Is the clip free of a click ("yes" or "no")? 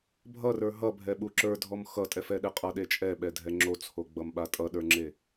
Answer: no